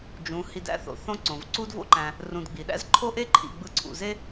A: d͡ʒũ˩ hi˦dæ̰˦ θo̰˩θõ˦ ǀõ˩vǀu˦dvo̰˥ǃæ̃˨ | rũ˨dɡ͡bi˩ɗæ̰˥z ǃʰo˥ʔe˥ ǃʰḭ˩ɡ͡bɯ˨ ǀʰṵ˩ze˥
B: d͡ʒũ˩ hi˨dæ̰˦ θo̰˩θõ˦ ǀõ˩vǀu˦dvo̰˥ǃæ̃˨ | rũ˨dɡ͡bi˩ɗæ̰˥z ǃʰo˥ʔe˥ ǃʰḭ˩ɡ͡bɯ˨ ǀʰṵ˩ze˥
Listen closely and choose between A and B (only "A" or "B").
B